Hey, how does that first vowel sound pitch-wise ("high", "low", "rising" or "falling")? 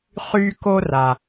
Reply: high